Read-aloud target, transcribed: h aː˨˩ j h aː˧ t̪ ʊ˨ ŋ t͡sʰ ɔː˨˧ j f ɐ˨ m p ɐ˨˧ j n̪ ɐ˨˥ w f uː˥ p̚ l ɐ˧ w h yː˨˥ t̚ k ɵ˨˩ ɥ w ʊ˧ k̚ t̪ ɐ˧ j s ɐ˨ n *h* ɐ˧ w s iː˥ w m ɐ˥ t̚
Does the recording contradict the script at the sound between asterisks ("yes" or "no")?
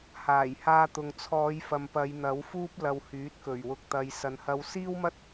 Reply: no